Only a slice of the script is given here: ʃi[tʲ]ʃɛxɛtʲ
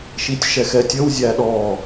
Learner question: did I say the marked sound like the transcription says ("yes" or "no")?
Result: yes